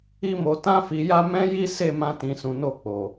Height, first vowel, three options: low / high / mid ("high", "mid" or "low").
high